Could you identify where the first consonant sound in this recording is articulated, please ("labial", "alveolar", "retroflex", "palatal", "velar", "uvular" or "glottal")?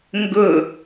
velar